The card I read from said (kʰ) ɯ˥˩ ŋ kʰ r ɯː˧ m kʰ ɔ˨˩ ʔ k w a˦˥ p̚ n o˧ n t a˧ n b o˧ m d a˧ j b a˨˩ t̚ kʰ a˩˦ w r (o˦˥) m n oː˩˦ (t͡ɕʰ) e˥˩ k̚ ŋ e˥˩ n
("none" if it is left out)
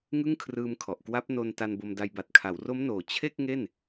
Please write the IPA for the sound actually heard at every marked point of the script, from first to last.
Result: ŋ, o˦˥, t͡ɕʰ

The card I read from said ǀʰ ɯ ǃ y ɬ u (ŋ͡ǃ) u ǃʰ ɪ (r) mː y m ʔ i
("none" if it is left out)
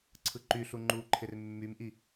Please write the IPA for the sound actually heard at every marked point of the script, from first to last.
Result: ŋ͡ǃ, r

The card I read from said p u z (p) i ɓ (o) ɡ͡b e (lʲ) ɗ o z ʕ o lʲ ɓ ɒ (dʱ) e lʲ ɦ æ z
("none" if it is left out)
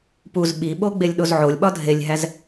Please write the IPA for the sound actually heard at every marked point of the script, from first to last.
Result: ɓ, o, lʲ, dʱ

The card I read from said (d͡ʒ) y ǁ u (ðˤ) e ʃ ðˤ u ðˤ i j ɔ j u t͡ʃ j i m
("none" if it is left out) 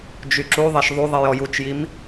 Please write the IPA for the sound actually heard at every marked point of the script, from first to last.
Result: d͡ʒ, ðˤ

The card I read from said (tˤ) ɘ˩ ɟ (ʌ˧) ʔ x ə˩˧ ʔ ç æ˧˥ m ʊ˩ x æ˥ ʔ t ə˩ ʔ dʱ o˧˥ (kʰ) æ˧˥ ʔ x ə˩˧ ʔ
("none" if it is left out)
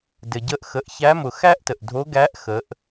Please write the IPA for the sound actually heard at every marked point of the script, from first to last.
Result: d, ə˧, ɡ

